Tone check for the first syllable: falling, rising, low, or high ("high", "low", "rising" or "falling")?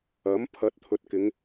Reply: rising